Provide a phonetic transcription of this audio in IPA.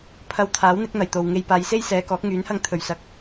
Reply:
pʰ ɐ˧ w t̪ʰ aː˨˥ w n̪ ɪ˨˥ k̚ n̪ ɐ˨˩ j t̪ o˨ w ŋ e˧ j p aː˨˧ j s e˥ j s ɛː˨˧ k ɔː˨˥ k̚ ŋ yː˨˥ n h ɐ˧ ŋ t̪ʰ ɵ˨˩ ɥ s ɐ˨˥ k̚

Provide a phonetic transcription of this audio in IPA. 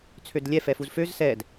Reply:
t͡sʰ ø d lʲ ɛ f ɛ f u z f ø z s ɛ d

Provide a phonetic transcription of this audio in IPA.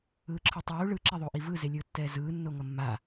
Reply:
ɯː ǁʰ ɯ tˤ uː ɭ ɯ ǁ e ðˤ o ʔ i v ɯ z e lʲ ɯː tː ɛː z ɯː nː o ŋ ʌ mː a

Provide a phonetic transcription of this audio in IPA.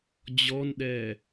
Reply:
d͡ʑ ɔ n ɗ ɛ

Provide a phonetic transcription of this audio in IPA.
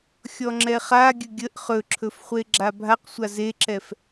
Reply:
xʲ ɔ ŋ͡ǁ ɛ χ a ɡʲ ɵ ɡʲ ə ʔ χ ɵ ǁʰ ɵ f χʷ e ɡ͡ǁ a bʱ a q sʷ a z e ǁ ɛ f

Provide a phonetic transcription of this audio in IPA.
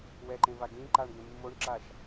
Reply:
w ɛ ǃ ẽ v a ɡ ĩ ǃ a ɳ ɡ ẽ mː o ɳ ǁ a ʃ

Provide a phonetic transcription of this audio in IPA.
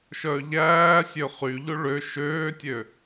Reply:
ʃ œː ʎ æː sʲ ø χ y ʎ o ɭ ø ʃ øː tʲ ø

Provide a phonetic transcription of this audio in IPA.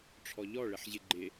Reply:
ʈ͡ʂʰ ɔ ʎ ɔ ɭ ɘ ħ ʑ ɪ ɡ͡ǃ ɪ

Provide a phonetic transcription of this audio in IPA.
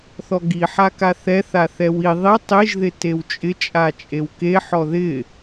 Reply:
θ ɔ ɡ i ħ a k a θ ɛ θ a θ ɛ w i ðˤ i tˤ i ʒ ð ɪ t e w t͡ʃʼ ɪ t͡ʃʼ a t͡ʃʼ e w k e ħ ɔ ð ɪ

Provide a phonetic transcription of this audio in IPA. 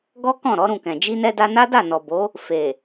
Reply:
ɡ ɔ˦ k ɔ̃˦˨ ɾ ɔ˨˦ ɾ ũ˦˨ k ɛ̃˨ d͡ʒ i˧ n ɛ˧ d a˧ n a˦ d a˦˨ n ɔ˨ b o˨˦ | f e˨

